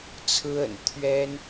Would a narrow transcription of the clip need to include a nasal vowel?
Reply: no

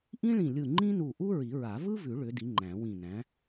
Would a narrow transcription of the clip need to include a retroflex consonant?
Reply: yes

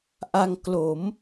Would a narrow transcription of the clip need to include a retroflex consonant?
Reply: no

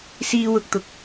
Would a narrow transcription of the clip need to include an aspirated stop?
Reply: no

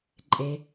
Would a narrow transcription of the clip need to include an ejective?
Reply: yes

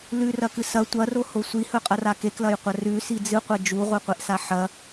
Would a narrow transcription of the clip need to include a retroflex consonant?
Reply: no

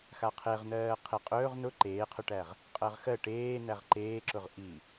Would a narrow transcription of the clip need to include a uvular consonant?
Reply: yes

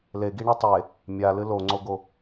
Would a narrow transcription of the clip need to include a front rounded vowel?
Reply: no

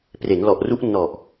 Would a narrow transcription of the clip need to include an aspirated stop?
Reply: no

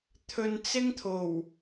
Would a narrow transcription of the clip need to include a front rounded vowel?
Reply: no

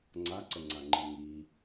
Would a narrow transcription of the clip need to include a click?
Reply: yes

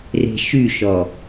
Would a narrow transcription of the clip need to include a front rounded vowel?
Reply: yes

